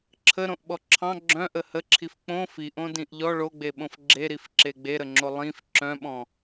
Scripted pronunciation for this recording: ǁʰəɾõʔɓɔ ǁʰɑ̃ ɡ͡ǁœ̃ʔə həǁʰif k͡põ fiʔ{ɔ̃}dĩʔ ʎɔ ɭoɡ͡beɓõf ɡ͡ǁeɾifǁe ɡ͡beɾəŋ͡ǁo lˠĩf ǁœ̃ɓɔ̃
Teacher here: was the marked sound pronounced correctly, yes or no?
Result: no